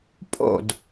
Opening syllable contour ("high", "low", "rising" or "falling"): falling